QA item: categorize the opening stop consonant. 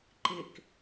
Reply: click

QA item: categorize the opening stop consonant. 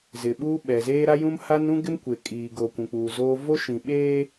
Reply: implosive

